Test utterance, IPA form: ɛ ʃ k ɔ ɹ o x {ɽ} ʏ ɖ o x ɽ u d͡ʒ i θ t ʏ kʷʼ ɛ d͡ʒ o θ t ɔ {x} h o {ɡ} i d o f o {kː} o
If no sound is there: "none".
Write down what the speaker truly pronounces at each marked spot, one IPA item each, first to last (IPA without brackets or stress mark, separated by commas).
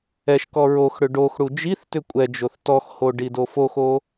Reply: ɽ, x, ɖ, x